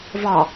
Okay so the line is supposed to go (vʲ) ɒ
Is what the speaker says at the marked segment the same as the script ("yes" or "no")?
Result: no